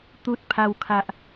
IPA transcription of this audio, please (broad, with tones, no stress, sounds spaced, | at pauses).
t̪ u˦ t̚ pʰ a˦ w kʰ a˦ ʔ